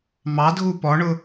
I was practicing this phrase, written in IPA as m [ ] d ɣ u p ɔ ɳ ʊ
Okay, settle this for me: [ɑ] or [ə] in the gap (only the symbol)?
ɑ